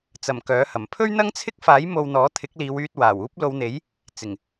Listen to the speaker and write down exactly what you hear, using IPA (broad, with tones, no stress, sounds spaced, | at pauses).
t͡s ɐ˨˩ m k œː˨˥ h ɐ˨˩ m pʰ ɵ˥ ɥ n̪ ɐ˥ ŋ t͡sʰ ɪ˥ k̚ f aː˨˥ j m o˧ w n̪ ɔː˨˥ t̪ʰ ɪ˨˥ k̚ l iː˨˧ w yː˧ t̚ w aː˨˩ w uː˥ p̚ l o˨˧ w n̪ e˨˥ j | t͡s ɪ˨˩ ŋ